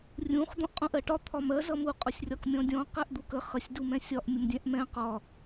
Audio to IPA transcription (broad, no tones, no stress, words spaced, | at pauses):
rʲũχ d̪ɔ̃ʔqʼũʔɜʈɒ t̪ʰɒmɜ zʌmu qʼʊsʲrʲɒkmʲɔ̃dʲɔ̃ qɛʔd̪ukə χəsʲ dumɛ̃sʲɒʔ mʲʊmdʲɛ̃ʔmɛ̃ qɒ